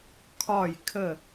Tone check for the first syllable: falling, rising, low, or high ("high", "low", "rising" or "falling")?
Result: falling